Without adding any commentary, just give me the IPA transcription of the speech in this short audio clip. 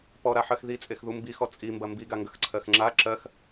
p ɔ ɾ a ħ ɜ x ð i t͡sʼ e x ð u m b i x ɔ t͡sʼ i m b ɐ m b i ɡ a ŋ ɡ ɐ x ǀʰ ɜ x ŋ͡ǁ a ǁ ɜ x

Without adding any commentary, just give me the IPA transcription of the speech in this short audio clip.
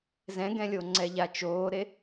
z ɛ̃ ɡ ɛ̃ lʲ o ŋ͡ǀ ɛ ʎ a t͡ʃ oː ɾ e

